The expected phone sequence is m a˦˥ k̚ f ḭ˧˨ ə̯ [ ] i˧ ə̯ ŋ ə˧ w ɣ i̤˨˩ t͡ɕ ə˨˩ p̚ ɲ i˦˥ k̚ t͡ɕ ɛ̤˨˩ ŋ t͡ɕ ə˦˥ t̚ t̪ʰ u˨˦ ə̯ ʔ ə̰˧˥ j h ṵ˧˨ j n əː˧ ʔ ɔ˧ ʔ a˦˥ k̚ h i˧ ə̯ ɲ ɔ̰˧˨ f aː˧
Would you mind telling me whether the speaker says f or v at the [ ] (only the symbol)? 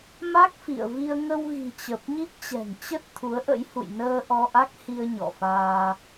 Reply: v